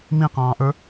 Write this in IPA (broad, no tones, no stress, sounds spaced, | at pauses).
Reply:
m ĩ q ɑ̃ː ʔ ə˞